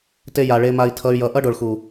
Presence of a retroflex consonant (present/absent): present